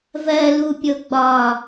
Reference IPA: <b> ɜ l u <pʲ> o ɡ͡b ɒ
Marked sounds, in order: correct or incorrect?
incorrect, correct

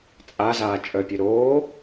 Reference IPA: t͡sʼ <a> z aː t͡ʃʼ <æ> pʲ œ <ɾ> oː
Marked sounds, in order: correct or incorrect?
correct, incorrect, correct

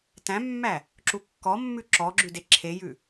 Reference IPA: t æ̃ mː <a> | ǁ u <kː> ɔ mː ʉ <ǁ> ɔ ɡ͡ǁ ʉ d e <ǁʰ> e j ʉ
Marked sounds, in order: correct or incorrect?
incorrect, correct, correct, correct

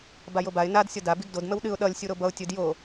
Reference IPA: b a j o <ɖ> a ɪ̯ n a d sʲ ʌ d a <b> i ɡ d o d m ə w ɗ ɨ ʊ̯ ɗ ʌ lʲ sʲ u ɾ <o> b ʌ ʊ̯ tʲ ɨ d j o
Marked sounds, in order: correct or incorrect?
incorrect, correct, correct

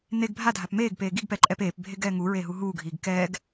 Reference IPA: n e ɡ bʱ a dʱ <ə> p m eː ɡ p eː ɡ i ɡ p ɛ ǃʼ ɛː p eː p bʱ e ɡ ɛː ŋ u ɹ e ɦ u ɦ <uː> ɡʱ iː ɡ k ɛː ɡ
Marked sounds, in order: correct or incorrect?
incorrect, correct

